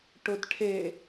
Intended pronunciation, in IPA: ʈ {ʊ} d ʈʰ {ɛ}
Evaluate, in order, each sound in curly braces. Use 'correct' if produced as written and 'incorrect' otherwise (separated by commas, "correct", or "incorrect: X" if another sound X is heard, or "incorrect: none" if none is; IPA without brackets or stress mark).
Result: correct, incorrect: e